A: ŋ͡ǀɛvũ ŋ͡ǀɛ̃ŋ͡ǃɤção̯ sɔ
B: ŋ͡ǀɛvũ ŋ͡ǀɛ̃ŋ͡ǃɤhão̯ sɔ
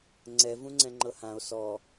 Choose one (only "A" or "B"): B